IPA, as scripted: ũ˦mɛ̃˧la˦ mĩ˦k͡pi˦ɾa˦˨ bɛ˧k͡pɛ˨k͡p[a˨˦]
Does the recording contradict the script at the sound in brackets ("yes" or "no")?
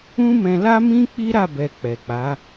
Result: no